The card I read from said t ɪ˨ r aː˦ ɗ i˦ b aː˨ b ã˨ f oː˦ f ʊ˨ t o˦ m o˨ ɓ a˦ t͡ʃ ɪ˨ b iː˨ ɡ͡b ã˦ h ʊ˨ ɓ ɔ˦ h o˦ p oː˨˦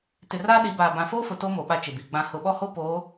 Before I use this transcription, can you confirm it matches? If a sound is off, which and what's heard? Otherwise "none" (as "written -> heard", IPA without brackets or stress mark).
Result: i˦ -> i˨˦